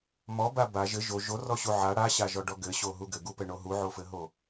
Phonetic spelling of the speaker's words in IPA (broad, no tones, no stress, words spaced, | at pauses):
mɔba ba ʒɘ ʒo ʒorɔɕu ʕa ɽaɕaʒɔɖɔ ɡɘɕoɦu ɡɘɡupɘɳo ɦuʕofɘɦo